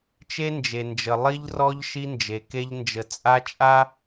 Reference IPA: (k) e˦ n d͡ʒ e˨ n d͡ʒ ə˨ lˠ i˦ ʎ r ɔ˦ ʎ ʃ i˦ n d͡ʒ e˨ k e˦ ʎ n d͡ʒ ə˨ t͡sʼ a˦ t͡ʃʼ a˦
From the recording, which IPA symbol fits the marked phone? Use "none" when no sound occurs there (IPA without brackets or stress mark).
t͡ʃ